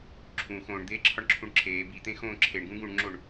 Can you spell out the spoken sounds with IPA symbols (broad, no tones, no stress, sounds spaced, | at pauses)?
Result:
ǁʰ ũ x õː ɳ d̪ eː ǁʰ ɒ ɳ ǁʰ ũ ɳ ǁʰ eː b i t̪ ẽ x õː ǁʰ e ɳ ɡ ũ ɡ ũ ɳ ŋ͡ǁ o ɳ